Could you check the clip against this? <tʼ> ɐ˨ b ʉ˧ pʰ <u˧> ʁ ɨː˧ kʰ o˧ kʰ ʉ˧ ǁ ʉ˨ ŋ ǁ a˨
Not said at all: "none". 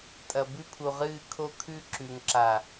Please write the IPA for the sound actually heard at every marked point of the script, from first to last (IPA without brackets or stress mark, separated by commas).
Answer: tʼ, u˨